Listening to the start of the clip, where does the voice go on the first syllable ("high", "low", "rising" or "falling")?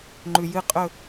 low